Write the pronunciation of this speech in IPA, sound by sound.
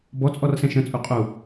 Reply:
b ɔ t͡sʼ ɔ r s ɛ̃ ʃ ə̃ t͡sʼ u qʼ u

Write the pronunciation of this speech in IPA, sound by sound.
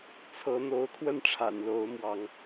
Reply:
t͡sʰ ɤ˨˦ n̪ o˨˦ ʊ̯ kʰ w ə˥˨ n ʈ͡ʂʰ a̰˨˩ n l o˨˦ ʊ̯ m w ɑ˨˦ ŋ

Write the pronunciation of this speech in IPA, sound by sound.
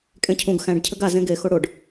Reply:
kʼ ẽ cʰ ũ ɡ x æ̃ ɖ cʰ ɘ ɡ a z ẽ ɡ e x o ɽ o ɖ

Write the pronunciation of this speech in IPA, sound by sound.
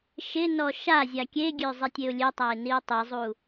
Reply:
ʃ ɪ n ɔ ʃ a zʲ a kʲ e ɡʲ ø zˤ i tʲ e ʊ̯ lʲ e tˤ a ɪ̯ n i ʊ̯ tˤ i zˤ u

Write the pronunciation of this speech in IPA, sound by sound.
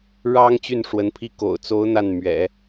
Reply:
ɻ ɑ˥ ŋ t͡ɕ y˥˩ n ʂ w ə˧˥ n pʰ i˥˩ k o̰˨˩ ʊ̯ t͡s o˧˥ ʊ̯ n̪ a˥˩ n m ɥ ɛ̰˨˩˦

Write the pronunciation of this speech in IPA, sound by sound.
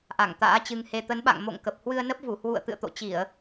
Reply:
ʔ a˧˩ ŋ t̪ a̰ː˧˥ t͡ɕ ɨ˧ ŋ h e˧ t̪ ə˨˦ n ɓ a̰˧˨ ŋ m o̰˧˨ ŋ k ə˨˩ p̚ h w ɨ˧ ə̯ n ə˦˥ p̚ v u˧˩ h w ṵ˧˨ ə̯ t̪ ɨ̰˧˨ ə̯ t̪ o̰˧˨ t͡ɕ i˧˩˨ ə̯

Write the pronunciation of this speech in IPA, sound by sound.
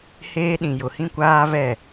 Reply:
h eː˦ ɗ ĩ˨ j ʊ˨ h ĩ˦ kʷ aː˦ v ɛ˦˨

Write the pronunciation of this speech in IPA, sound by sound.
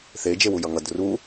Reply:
θ e d͡ʒ e w u j ʌ ŋ ʌ d r u

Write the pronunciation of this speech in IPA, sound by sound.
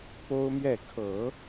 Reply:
p o˥ ʊ̯ m ɥ ɛ˥˩ kʰ ɤ˨˩˦

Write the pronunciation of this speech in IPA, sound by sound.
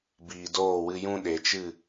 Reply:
b iː˨ d oː˦˨ w ɨ˧ j ũ˦ ɗ e˨ t͡ʃ ɨ˦˨

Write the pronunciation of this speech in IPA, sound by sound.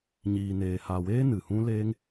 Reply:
ɲ iː˨ n eː˨ h aː˨ w eː˦ n ɨ˨ h ũ˦ l eː˦ ŋ

